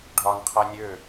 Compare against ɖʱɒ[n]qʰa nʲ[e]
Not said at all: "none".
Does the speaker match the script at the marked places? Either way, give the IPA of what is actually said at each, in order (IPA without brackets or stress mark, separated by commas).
n, ø